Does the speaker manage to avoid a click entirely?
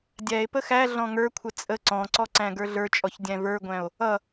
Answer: no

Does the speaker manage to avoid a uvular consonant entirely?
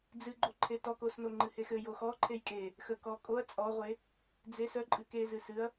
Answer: no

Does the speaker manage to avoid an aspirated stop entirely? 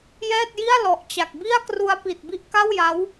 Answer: yes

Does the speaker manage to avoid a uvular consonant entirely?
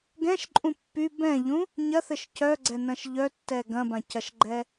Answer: yes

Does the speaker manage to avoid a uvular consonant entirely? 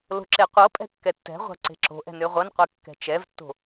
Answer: no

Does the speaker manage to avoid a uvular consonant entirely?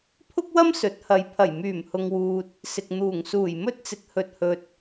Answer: yes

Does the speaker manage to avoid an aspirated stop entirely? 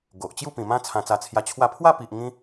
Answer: no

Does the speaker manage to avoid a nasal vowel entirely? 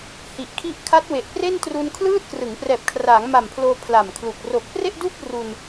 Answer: yes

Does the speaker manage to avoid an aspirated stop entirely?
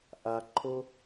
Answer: no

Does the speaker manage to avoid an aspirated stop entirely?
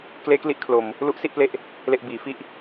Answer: no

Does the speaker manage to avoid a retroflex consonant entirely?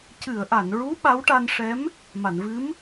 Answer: no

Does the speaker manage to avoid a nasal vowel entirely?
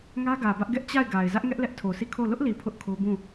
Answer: no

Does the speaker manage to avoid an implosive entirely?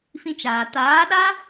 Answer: no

